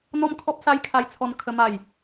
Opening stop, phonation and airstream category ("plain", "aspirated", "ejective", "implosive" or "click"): aspirated